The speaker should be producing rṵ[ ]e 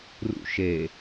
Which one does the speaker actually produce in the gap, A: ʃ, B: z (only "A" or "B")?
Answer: A